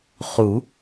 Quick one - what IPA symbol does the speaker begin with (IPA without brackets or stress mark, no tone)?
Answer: χ